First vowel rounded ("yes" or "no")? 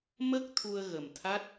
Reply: no